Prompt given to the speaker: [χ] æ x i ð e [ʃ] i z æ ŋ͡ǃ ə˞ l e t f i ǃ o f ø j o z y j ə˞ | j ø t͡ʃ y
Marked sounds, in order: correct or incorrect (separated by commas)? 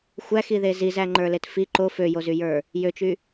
incorrect, incorrect